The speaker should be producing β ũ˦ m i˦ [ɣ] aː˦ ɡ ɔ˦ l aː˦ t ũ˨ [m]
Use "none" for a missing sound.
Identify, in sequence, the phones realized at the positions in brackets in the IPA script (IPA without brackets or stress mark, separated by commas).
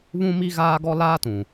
ɣ, none